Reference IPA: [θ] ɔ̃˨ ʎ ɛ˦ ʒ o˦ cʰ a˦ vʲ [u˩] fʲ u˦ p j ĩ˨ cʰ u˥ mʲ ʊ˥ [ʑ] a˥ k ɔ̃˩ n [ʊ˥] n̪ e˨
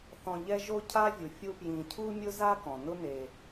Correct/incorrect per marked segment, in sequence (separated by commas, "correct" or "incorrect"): correct, correct, incorrect, incorrect